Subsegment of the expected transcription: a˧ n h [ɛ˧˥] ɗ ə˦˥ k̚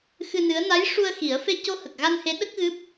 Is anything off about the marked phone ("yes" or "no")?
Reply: yes